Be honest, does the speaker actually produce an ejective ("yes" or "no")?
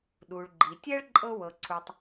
yes